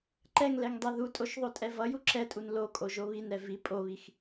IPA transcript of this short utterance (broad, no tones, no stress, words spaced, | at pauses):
ǃɛŋlɛŋdˤɛ ðutʼoʃðˤotʼɛ vʌju ǁɛtʼun lokʼoʒo βinɾɛ vi pʼoβix